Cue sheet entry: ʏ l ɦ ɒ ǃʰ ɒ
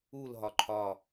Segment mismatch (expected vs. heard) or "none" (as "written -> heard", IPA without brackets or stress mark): ʏ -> u